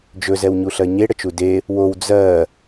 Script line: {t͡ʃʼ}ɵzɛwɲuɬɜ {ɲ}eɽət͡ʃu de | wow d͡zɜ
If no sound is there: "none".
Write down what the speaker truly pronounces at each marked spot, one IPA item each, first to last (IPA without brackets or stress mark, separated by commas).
d͡ʒ, ɲ